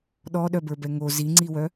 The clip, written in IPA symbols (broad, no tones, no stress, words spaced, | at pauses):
ɗɔɗœbə˞bɛ ŋo ziŋ͡ǀiwœ